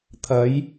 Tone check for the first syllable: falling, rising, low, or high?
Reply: rising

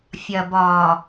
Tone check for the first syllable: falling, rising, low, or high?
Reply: low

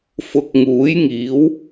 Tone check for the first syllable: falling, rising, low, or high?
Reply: low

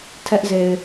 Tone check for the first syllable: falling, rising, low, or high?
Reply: high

